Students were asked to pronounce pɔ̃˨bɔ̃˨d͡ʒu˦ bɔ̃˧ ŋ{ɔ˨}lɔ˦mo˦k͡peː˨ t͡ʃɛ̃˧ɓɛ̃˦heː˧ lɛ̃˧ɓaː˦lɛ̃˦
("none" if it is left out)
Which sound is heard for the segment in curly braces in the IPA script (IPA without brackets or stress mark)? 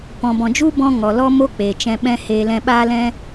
ɔ˨